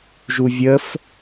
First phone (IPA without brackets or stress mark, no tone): ʒ